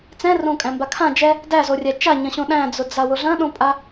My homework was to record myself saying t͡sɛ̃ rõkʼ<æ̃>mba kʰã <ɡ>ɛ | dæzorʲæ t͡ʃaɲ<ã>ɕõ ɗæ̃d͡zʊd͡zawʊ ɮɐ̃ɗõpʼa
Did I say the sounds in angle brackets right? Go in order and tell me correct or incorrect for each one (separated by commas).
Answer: correct, incorrect, incorrect